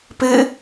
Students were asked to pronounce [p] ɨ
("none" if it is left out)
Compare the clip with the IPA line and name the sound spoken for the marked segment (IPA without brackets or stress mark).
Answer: p